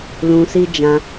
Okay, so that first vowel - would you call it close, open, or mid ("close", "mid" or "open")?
close